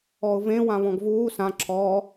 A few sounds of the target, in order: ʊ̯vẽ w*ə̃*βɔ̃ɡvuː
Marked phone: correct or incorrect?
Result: incorrect